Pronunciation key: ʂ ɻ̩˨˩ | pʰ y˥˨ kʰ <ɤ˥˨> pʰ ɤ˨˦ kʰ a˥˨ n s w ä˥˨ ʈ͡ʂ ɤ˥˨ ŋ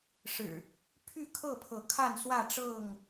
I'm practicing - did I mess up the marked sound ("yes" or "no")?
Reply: no